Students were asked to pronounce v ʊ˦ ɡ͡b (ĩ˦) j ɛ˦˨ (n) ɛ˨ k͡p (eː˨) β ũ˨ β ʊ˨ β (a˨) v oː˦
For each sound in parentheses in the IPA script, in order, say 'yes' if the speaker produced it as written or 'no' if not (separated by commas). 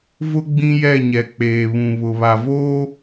yes, no, yes, yes